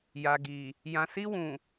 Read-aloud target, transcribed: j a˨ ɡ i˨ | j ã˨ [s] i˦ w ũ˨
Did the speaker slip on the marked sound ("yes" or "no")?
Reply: no